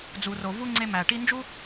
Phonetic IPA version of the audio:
d͡z u˨ r o˨ v u˦ ŋ͡ǀ e˧ m æ˨ ʈ i˧ n d͡ʒ u˦

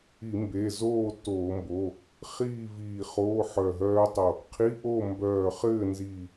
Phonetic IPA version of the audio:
i˧˩˧ m b e˩˧˩ z oː˥˨ t oː˧˩˧ m b o˩˧˩ | χ iː˥˨ v iː˧˩ χ oː˧˥˧ ħ œ˧˩ ɦ œː˦˥ tˤ o˧˩ | qʰ i˧˥˧ ʔ o˥˨ m b œː˧˩ χ ɘː˥˨ n z i˧˩

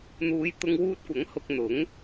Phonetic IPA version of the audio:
n̪ uː˨˧ j t̪ ʊ˧ ŋ w uː˧ t̚ kʷ ɐ˨˥ ŋ h ʊ˧ k̚ n̪ ʊ˨˥ ŋ

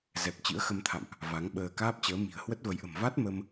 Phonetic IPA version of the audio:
z ɛ˨˩ p̚ t͡ɕ ɨ̰˧˥ ə̯ x ə˧ m t̪ʰ a̰˧˨ m ʔ | v a˨˦ ŋ ɓ əː˧ k aː˦˥ p̚ t͡ɕ əː˨˦ m i̤˨˩ ə̯ h w ə˦˥ t̚ v ə˨˦ j ʔ ə̤˨˩ m v a˦˥ t̚ m ə˧ m

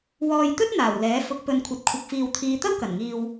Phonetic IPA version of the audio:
w ɔː˨ j t̪ ɵ˥ t̚ n̪ aː˨˩ w l ɛː˨˥ f ʊ˨˥ k̚ p ɵ˨ n kʷʰ ɐ˨ t̚ kʷʰ ɪ˨ k̚ f iː˨ w t̪ʰ iː˨˧ t̪ ɐ˥ w k ɐ˨˩ n ŋ iː˧ w

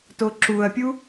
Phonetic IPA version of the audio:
t o ǁ u ɐ̯ pʲ u

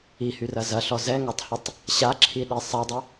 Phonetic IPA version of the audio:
i h y r ɐ z ɐ ɬ ɔ z ɛ ŋ a tˤ h ʊ tˤ | ɕ a ǁʰ i ɗ i sˤ ɐ dˤ ɪ

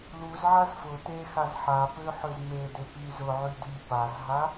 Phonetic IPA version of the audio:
l u z ʕ a z f ʊ t e x a z ħ a p ø ħ ø z m e d e p y z ʊ ʕ y d y p a z ɦ a

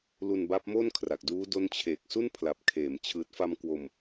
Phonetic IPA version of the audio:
l u˧ n b a˦˥ p̚ m o˥˩ n kʰ r a˨˩ k̚ d uː˦˥ d o˦˥ n t͡ɕʰ eː˨˩ k̚ s u˥˩ n pʰ l a˨˩ p̚ kʰ eː˩˦ m t͡ɕʰ ɯː˨˩ t̚ f a˧ m k w o˧ m

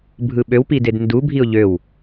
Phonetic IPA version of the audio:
bʱ ɯ ɓ ø w p i d e d n d u bʱ i ʊ̯ ʎ ø w

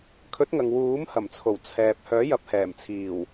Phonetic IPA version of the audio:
kʰ ɵ˨˥ t̚ ŋ ɐ˨ ŋ w uː˨˥ m h ɐ˨˩ m t͡sʰ o˨˩ w t͡sʰ ɛː˨ p̚ h œː˨˥ j ɐ˨˥ p̚ h ɛː˨˩ m t͡sʰ iː˨˩ w

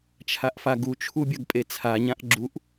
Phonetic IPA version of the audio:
t͡ʃʰ a ʔ f a ɡ u t͡ʃʰ u bʲ ɐ ɡ pʼ e t͡sʰ a ɲ ã ʔ ɡ͡ǁ u ʔ

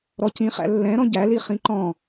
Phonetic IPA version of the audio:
ɾ ɔ c ĩ χ æ̰ lː ɛ̃ ɾ ɔ̃ ɟ æ l i χ ĩ ǃ ɔ̃

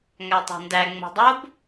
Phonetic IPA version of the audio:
ŋ æ tˤ a̤ n d æ ŋ͡m o̤ dˤ o b

